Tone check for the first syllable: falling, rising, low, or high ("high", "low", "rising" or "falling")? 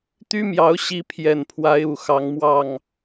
high